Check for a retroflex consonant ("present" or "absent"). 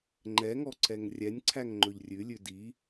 absent